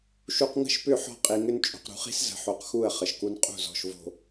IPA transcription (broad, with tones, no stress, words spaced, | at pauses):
ʃu˨qŋə̤˦˨ʃpʏ˦˨ ħɔ̤˦qʼi˨ŋʏ˦n t͡ʃʼo̤˨qɾṳ˨χi̤˦s zə̤˨ħo˨qxu˦˨ə̯ χə˨ʃku˦n qʼṳ˦˨zɔ̤˨ʃvo̤˨